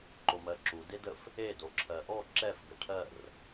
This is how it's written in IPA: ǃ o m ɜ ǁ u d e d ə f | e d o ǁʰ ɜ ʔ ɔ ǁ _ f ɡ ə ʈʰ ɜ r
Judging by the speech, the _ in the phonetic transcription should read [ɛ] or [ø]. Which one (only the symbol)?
ɛ